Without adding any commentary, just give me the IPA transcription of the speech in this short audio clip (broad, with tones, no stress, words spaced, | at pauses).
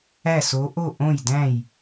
æ˥˨so˧˥ ʔo˥˨ʔõ˥˨jdæ̃˥˨j